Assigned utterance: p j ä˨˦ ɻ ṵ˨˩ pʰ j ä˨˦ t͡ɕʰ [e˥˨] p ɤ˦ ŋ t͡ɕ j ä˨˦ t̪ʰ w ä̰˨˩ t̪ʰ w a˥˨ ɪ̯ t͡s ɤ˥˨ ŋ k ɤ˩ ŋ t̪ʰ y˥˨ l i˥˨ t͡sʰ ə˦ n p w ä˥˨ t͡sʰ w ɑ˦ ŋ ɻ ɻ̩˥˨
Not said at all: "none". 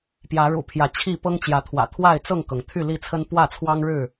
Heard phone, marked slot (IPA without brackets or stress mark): i˥˨